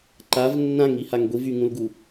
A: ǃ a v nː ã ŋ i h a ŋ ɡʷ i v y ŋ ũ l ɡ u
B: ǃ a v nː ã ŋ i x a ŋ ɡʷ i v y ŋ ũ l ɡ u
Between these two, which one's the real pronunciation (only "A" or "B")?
A